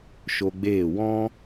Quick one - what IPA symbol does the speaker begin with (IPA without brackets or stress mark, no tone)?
ʃ